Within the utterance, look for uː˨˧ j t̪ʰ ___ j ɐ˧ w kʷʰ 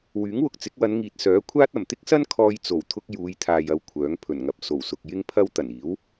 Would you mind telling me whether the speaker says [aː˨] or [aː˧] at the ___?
aː˨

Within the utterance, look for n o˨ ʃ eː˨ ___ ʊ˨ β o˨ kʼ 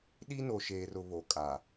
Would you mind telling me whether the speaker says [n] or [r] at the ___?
r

